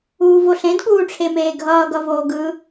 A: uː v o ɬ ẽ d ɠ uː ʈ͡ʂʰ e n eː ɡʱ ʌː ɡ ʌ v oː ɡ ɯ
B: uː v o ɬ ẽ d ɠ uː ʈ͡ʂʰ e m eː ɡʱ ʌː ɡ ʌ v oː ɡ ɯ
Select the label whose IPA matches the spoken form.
B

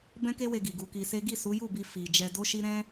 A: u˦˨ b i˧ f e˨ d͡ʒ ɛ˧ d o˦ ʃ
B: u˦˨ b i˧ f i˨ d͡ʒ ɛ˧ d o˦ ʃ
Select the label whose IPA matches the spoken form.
B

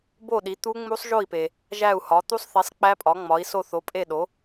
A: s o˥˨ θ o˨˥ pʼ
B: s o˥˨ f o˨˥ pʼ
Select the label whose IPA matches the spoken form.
A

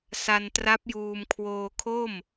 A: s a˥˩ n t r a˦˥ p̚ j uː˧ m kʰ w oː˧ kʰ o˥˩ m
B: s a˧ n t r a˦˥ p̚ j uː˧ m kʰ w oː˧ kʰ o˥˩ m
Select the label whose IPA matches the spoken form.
B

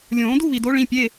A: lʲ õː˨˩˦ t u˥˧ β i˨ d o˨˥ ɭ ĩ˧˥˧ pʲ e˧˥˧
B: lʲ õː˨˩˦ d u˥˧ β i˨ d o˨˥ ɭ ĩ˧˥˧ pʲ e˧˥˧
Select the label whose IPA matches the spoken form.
B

